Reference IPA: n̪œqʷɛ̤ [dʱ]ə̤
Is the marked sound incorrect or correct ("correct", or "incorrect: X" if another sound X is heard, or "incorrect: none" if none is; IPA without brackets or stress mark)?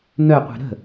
incorrect: ɾ